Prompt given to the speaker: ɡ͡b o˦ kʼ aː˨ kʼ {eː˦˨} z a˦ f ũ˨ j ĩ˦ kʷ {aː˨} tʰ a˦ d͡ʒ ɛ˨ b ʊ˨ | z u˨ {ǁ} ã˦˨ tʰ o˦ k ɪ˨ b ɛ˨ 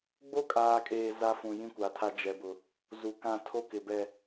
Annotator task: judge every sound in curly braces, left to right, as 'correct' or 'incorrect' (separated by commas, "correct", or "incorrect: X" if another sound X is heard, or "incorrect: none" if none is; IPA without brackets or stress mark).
incorrect: eː˨, incorrect: a˨, incorrect: k